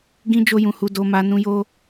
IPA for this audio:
ɡ ĩ˦ d͡ʒ o˦ j ũ˧ h u˧ d o˧ m a˧ n ũ˦ j o˦

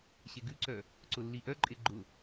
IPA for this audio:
ɕ e ɡ ʉ ǀ œ | ǀ ʊ lː i ʔ œ ǃʼ e ɡ͡ǃ ʊ

